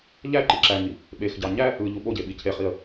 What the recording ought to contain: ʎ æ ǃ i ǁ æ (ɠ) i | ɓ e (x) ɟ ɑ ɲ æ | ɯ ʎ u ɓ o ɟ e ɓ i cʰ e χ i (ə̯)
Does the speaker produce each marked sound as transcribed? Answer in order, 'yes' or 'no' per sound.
no, yes, yes

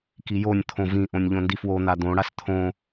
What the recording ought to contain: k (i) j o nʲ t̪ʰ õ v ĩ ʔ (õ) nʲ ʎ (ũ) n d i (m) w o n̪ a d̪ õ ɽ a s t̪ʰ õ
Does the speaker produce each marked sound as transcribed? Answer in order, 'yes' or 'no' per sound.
yes, yes, no, no

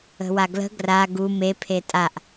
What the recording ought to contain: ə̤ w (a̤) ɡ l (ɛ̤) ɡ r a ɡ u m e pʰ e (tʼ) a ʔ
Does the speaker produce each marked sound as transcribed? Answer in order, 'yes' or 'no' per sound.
no, no, yes

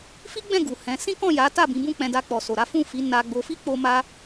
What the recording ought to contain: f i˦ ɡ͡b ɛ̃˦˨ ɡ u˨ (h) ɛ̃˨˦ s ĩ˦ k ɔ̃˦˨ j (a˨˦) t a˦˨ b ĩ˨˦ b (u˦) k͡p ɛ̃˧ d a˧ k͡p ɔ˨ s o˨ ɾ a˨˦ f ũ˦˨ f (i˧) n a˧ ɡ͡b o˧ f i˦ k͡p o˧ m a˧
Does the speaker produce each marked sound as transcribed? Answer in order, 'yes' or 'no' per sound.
yes, yes, no, no

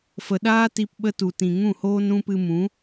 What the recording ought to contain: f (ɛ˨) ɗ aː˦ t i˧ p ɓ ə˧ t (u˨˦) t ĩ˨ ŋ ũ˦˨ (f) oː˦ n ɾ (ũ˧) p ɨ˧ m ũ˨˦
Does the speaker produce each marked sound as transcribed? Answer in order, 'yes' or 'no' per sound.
no, no, no, yes

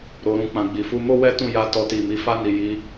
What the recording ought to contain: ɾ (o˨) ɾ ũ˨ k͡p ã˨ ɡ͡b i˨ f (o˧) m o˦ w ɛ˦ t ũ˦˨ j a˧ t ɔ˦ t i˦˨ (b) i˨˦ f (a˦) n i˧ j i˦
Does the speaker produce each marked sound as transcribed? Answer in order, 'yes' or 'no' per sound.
yes, no, no, yes

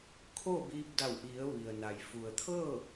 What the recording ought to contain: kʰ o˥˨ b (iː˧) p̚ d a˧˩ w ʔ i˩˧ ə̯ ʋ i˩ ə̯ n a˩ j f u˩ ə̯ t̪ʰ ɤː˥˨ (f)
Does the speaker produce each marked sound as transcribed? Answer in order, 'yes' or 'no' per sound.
yes, no

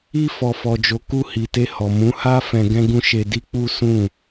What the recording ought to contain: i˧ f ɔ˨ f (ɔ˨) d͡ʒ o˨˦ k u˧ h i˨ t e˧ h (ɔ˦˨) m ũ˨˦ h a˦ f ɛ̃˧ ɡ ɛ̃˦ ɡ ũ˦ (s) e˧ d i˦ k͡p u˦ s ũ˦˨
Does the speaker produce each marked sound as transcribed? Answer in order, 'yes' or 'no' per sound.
yes, no, no

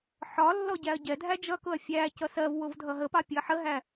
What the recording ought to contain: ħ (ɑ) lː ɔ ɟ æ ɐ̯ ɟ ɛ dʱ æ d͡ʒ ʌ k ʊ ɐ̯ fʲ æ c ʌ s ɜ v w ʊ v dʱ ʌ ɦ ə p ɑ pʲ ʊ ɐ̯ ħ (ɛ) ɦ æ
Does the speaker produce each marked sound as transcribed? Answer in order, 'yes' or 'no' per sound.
no, no

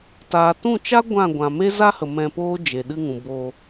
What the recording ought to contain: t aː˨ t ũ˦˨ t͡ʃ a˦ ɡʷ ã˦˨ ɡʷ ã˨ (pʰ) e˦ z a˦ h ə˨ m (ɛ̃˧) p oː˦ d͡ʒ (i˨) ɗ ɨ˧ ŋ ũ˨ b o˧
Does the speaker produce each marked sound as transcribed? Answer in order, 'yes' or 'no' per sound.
no, yes, no

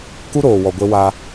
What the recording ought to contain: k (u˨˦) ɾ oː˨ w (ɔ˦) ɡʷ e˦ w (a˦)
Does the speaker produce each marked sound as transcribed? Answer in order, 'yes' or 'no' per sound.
no, no, yes

